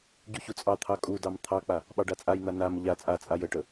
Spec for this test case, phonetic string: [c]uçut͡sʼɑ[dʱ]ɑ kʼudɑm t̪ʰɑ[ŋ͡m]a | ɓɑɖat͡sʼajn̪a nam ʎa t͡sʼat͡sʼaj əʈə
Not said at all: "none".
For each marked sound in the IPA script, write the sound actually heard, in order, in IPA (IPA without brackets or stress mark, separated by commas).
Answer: ɟ, t̪ʰ, k͡p